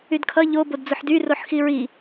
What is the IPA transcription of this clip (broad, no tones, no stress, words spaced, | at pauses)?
ydkʰʌ ʎo bodd͡zʊħdy roħxiɹi